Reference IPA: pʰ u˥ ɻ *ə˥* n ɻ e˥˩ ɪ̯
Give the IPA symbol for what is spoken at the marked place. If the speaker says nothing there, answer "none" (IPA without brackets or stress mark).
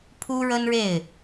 ə˥